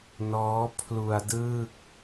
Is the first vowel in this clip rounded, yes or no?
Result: yes